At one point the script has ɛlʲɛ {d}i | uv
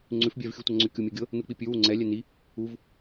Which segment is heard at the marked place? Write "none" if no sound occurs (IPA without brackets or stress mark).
n